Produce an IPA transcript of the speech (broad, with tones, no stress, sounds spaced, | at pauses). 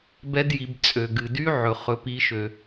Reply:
b ɛ˦˥ d j i˩˧ b t͡sʼ ø˩ ɡ ɨ˩ d y˦˥ ʕ ɵ˩ χ ɵ˩˧ p i˩˧ ʃ ø˩